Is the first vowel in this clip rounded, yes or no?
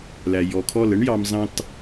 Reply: no